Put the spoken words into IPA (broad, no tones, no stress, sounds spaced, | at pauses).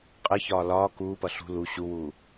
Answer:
qʼ ə ç ɒː l ɒː k uː p ʌ ɬ ṳ l u ɕ u w uː